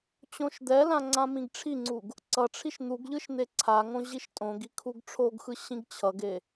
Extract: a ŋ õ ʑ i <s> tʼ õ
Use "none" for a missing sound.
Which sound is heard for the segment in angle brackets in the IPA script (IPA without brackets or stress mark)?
ʃ